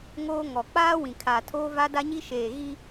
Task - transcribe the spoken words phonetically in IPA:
ŋoː˦ŋɔ˨ k͡paː˦ wĩ˨kʰa˨tʰoː˦ va˦da˦ɲi˦ʃeː˨ ɣi˦

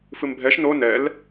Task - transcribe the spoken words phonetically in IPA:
fɨmbʱɛʃ no nɛl

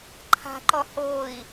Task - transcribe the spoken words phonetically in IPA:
ǃʰa̤ǃɔ hoi̯

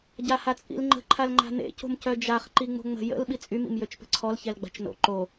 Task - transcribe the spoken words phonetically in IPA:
ɟahat͡sʼḭlŋ͡ǃə̤ ǃʰalŋ͡ǃa̤nḛ co̤mcœd͡ʒaχ ǃiŋ͡mo̤ŋ͡mə̤ jə̰l ɓit͡sʼym ḭmjøt͡ʃpə̤ǀʰɔl çɛlɡ͡ba̤t͡ʃno̰ ǃo

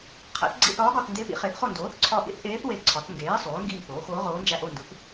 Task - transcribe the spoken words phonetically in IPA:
qʰæ̰˩˥θɡ͡ǀḭ˦˨θɒː˧˥ɡɒ˦˨θ nde˧˥pḭ˩˥ χe˩˥θχo˦˨ndoː˩˥θ ǀʰɒ˦˨ ʔḭ˧˥θʔeː˧˥θ we˦˨ǀʰɒ˩˥θ ŋɡeː˩˥ sˤoː˩˥ ŋɡiː˦˨poː˩˥xoː˧˥ʁoː˧˥ nd͡ʒæ˦˨ʔo˦˨ndu˩˥θ

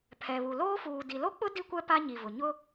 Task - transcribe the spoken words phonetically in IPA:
pʰɛ˨βu˨ loː˦fuː˨ di˨lo˦k͡pʊ˦ di˦kʷɛ˦ pa˦ɲi˨vʊ˨ ɲʊ˦

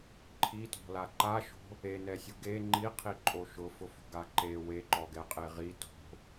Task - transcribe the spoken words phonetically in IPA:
ǃʰitɔ̤la ǃaʃo̤ | enɛsʲʊ ɡe ŋ͡ǃiqʰiǃʼo ʃʊfʊfo̤ɡa ǃe weǃɔɡɛqʼe ʁi to̤

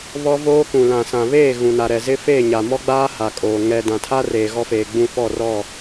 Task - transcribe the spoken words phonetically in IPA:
βɔ˦voː˦kũ˨ lã˨sã˨βeː˦˨ ɣũ˨na˨ ɾɛ˨zɪ˦ feː˦˨ɲa˨mɔ˦ɡ͡baː˦ ha˨kʼoː˨ ŋɛ˨dã˨tʰa˦ reː˨ɣɔ˦feː˨ɡ͡bũ˦˨ fɔ˦˨rɔ˦˨

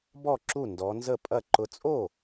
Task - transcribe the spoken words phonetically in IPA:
bɔ˥˩ǁu˥˩ ndɔ˨˦nzə˥˩pʼɐ˥˩ ǃʊ˨˦t͡sʼo˥˩

